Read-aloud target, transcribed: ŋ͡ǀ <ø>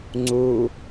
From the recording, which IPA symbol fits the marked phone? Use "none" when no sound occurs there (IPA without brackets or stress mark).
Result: u